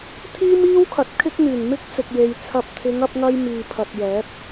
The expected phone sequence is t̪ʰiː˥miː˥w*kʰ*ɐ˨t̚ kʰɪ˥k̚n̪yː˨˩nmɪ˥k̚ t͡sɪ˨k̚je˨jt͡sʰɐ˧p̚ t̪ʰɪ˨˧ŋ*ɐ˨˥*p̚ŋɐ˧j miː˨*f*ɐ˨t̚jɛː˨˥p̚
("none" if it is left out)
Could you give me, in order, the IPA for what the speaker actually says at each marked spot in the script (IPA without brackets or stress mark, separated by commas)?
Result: kʰ, ɐ˧, pʰ